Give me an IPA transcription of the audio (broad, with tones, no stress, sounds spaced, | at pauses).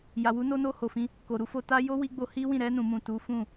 j a˨ w u˨˦ n o˧ n o˧ h o˨ f ĩ˧ | k o˨ ɾ u˨˦ f o˧ t a˦ j o˦ w i˧ ɡ͡b o˧ h i˦ w ĩ˦˨ ɾ ɛ˧ n ũ˨ m ũ˨ t u˨˦ f ũ˦˨